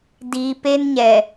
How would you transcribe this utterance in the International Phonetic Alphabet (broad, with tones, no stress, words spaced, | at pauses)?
diː˨pe˦nɲɛ˨